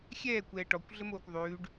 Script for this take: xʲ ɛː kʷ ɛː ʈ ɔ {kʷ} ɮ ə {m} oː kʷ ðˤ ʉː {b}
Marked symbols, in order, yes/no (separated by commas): yes, yes, no